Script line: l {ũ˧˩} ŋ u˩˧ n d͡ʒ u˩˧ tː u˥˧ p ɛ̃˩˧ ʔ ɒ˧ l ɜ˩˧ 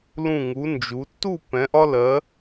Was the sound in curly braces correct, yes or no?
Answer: yes